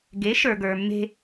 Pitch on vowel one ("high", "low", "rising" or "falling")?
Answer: rising